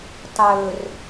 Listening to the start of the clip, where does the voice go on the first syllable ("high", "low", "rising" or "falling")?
low